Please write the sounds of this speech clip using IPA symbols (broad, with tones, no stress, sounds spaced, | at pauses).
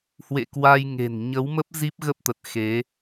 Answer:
h w ḛ˧˨ k w a˧ j ŋ e̤˨˩ n ɲ ə˨˦ w m ə˦˥ p̚ z i˦˥ p̚ ɣ ə˦˥ p̚ t̪ ə˨˩ t̚ x e˨˦